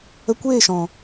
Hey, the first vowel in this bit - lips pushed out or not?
no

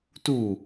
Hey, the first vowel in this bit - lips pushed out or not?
yes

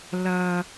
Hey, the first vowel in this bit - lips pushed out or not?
no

